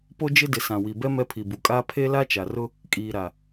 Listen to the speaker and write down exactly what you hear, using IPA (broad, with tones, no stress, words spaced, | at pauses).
po˦d͡ʒɪ˦dɪ˨ sã˨wi˨bɛ˦ mɛ˦pʰi˨bu˨ kʼaː˦ pʰe˦la˦t͡ʃa˨rʊ˦ | kʼiː˨ɾa˨